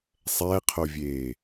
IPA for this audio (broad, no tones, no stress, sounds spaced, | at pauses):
sˤ ɛː qʰ o vʲ eː